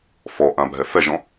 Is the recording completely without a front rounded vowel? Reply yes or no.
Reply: yes